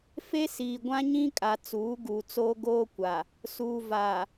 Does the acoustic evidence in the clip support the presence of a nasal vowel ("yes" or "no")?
yes